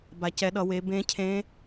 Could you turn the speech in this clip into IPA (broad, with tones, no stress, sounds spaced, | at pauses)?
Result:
b a˩ c ɛ˩˧ ɗ ʌ˩˧ w e˩˧ b ẽ˧˥ cʰ ẽ˧˥